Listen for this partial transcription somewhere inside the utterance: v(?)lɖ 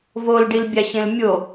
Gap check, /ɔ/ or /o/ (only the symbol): o